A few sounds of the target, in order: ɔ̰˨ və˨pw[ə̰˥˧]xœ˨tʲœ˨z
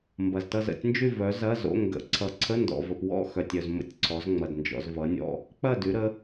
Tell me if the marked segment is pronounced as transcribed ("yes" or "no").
no